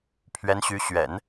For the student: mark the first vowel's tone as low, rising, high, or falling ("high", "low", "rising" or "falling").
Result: rising